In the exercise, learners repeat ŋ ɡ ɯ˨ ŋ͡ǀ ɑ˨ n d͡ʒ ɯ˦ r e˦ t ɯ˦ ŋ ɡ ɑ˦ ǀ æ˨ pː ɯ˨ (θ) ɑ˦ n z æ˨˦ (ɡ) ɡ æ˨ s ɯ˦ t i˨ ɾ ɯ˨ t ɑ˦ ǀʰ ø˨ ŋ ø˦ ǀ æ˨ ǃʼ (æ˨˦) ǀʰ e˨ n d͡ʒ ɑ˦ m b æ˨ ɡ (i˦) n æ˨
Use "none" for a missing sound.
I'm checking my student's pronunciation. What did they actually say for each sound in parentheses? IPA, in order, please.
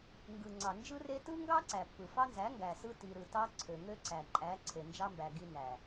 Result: f, ŋ, æ˨˦, i˦

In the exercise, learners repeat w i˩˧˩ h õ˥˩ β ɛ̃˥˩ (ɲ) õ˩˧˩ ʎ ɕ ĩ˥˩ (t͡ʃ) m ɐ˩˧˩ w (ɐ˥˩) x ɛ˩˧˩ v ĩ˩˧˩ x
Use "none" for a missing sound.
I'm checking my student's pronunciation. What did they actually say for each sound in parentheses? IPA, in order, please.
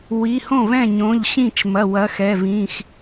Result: ɲ, t͡ʃ, ɐ˨˦

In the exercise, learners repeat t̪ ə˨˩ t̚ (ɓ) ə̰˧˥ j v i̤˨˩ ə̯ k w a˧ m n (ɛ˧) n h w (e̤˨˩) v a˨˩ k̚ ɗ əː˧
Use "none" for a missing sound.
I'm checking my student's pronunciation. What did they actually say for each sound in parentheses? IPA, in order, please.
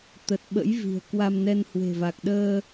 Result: ɓ, ɛ˧, e̤˨˩

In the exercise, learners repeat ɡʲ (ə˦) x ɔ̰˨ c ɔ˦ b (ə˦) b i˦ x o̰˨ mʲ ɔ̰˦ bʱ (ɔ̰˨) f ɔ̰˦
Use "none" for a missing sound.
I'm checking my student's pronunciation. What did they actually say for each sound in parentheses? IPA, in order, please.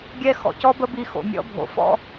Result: ɛ˦, ə˦, o̰˨

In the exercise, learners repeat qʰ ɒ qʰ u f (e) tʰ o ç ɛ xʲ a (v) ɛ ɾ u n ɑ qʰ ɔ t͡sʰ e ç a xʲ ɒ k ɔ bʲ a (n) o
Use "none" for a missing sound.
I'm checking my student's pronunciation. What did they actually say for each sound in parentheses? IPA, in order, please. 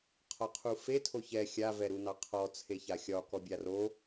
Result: e, v, r

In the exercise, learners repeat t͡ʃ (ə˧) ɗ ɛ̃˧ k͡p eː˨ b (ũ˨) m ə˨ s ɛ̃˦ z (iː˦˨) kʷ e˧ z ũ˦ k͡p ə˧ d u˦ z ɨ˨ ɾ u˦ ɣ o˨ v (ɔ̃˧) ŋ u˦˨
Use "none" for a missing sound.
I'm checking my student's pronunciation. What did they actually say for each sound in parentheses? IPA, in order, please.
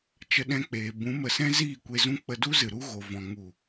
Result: ə˧, ũ˨˦, iː˦˨, ɔ̃˧

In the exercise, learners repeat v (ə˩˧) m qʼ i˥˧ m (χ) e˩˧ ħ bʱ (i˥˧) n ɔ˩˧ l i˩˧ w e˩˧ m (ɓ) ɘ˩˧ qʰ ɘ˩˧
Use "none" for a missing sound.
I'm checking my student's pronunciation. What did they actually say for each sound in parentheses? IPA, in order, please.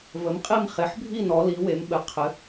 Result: ə˩˧, χ, i˥˧, ɓ

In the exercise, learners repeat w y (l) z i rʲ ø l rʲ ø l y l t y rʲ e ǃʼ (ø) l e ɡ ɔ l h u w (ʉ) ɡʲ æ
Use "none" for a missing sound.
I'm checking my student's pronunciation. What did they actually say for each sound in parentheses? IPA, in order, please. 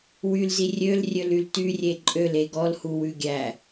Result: l, ø, ʉ

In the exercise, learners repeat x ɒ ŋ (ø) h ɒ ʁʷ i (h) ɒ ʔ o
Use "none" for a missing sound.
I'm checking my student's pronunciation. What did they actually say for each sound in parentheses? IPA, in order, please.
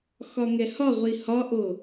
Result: ɛ, h

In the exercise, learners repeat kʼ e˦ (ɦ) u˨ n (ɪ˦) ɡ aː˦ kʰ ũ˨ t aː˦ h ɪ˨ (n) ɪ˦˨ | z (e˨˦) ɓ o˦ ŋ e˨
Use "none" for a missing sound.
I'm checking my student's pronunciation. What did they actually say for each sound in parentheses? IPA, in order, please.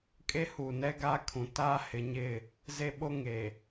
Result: h, ɛ˦, ɲ, e˦

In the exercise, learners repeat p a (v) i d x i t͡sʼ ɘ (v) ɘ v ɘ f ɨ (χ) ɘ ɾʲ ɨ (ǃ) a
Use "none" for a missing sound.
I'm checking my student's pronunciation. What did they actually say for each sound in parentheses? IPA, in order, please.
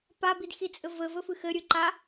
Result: b, v, x, ǃ

